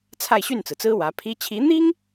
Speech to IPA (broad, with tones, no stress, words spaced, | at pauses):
t͡sʰa˥˧ɪ̯ɕy˥˩nt͡sɹ̩˩t͡sɹ̩˥ wä˧˥pʰi˥ t͡ɕʰi˧˥n̪i˥ŋ